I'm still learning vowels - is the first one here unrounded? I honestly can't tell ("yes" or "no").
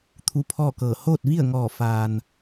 no